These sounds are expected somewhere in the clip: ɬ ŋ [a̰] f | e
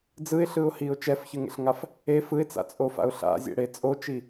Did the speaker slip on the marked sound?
yes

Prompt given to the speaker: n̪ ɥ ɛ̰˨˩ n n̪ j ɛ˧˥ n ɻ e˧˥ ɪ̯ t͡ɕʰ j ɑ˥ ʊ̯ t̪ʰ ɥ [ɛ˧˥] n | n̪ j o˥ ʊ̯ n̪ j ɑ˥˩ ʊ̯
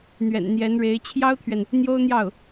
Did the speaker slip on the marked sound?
yes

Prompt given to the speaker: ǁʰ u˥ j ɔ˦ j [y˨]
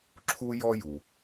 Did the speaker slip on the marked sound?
yes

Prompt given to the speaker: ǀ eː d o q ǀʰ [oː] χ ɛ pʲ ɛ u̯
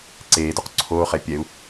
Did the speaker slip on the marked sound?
no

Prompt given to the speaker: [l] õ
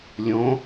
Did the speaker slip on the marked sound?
yes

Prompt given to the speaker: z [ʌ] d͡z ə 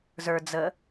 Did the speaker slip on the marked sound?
yes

